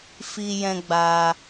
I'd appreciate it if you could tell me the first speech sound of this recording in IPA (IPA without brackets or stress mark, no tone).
f